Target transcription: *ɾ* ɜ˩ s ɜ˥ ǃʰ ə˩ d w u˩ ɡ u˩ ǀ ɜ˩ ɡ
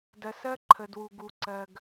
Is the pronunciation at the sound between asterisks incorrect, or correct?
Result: incorrect